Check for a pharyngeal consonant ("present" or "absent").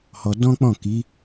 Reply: absent